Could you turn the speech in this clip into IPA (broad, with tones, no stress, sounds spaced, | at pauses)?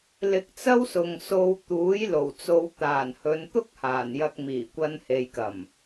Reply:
l ɪ˧ k̚ t͡s ɐ˥ w s ʊ˨ ŋ s o˧ w t̪ uː˨˥ j l o˨˩ w t͡s o˨˧ w t̪ aː˨˩ n h ɵ˨˧ n t̪ ʊ˥ k̚ h aː˨˩ n j ɐ˧ k̚ m iː˨˩ kʷ ɐ˧ n h e˨ j k ɐ˨˩ m